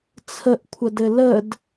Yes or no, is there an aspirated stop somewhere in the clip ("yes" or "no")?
yes